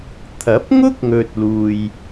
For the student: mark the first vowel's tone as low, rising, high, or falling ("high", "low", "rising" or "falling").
rising